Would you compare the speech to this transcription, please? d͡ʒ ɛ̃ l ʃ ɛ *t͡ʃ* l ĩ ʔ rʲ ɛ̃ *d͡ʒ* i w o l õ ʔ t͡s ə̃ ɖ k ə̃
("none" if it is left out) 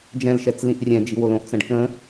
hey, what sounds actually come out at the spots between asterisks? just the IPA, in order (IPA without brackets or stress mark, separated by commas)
t͡s, d͡ʒ